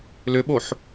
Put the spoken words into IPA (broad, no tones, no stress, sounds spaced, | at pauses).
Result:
l ʏ ɓ o ħ